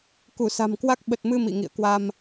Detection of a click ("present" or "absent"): absent